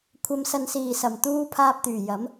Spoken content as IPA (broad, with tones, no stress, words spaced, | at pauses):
kʷʰɐ˨˧msɐ˨nsiː˨˩ sɐ˨˩mt̪uː˧ pʰaː˧p̚t̪yː˨˩ jɐ˨˥m